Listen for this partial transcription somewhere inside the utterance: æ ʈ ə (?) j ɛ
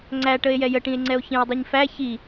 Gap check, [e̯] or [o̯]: e̯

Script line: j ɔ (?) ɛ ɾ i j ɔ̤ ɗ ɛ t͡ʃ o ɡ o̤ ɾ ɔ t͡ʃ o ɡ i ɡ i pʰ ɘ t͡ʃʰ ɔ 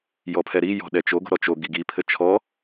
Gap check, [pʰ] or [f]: pʰ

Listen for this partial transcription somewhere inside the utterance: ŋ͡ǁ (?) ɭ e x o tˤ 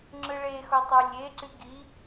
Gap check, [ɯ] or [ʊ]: ɯ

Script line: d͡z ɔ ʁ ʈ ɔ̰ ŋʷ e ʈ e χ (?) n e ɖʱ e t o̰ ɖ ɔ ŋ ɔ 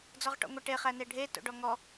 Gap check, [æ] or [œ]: æ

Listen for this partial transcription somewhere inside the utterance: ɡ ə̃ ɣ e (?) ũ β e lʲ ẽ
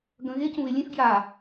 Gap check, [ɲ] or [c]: c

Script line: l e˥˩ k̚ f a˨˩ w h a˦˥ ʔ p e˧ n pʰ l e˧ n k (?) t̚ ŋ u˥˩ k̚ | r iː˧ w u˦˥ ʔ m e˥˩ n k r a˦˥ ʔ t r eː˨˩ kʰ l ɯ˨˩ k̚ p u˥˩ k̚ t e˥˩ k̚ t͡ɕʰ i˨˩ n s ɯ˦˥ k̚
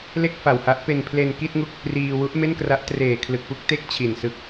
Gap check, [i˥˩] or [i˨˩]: i˥˩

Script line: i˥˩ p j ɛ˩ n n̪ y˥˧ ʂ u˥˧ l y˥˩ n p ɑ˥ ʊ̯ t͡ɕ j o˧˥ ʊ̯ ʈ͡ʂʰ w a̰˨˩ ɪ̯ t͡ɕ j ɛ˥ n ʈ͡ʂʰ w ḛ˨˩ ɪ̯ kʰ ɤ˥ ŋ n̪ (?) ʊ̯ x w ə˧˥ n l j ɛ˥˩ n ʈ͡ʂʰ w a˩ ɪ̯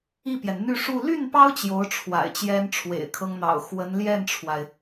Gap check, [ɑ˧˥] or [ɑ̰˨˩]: ɑ̰˨˩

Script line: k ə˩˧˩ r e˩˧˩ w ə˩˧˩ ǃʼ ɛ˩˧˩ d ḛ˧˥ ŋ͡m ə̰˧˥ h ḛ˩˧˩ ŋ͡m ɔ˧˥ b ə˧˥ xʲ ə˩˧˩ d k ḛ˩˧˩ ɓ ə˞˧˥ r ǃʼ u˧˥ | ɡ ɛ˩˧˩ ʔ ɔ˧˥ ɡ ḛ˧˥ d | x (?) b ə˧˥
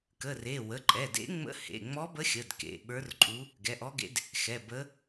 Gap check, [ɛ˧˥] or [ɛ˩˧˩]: ɛ˩˧˩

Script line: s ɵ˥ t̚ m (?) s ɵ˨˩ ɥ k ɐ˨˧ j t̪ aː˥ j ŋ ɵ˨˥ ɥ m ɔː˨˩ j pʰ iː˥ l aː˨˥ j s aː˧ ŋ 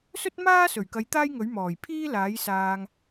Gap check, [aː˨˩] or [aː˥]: aː˥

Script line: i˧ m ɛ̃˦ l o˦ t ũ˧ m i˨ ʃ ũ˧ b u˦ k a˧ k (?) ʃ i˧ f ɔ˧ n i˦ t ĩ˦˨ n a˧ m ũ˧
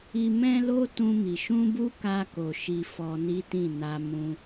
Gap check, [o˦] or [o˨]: o˨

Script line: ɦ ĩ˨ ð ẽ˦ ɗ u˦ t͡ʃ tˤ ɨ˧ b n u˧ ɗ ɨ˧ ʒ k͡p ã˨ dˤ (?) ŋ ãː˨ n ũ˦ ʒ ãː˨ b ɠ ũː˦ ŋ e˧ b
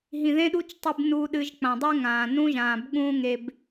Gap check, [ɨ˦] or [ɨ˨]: ɨ˦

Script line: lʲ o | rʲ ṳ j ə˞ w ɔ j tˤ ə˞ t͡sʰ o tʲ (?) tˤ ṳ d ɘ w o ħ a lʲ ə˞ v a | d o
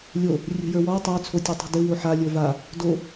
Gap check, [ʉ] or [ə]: ʉ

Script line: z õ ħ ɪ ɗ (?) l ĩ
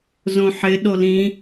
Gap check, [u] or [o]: o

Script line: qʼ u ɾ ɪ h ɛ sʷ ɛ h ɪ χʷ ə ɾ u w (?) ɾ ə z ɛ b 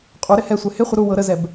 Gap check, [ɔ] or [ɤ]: ɤ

